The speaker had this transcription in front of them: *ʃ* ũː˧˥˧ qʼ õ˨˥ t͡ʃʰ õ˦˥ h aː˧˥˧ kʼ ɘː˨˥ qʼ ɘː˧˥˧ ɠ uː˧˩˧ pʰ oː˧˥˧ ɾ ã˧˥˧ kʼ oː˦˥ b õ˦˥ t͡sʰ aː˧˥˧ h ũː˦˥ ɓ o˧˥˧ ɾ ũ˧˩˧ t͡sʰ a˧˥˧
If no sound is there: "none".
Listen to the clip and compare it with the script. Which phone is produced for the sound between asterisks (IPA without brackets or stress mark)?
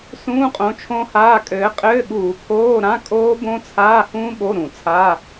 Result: s